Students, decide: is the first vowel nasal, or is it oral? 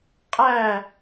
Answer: oral